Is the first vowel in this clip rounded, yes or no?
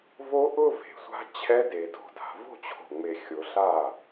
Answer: yes